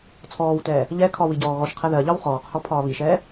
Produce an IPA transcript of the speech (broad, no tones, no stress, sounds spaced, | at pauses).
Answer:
t͡sʰ ɔː w t ɛː | ʎ ɛ kʰ ɒ w i ɟ ɔː ɣ ɔ ʃ qʰ ɛ ð ɜ ʎ ɑ w χ ɔː q h ɔ pʰ ɒː β i ʃ ɛː